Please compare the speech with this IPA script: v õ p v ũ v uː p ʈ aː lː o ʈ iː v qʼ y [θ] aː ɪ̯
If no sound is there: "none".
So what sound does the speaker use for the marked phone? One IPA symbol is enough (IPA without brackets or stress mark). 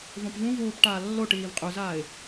z